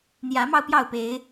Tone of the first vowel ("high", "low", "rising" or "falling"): rising